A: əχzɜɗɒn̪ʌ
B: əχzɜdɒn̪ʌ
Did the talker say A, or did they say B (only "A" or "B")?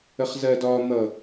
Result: B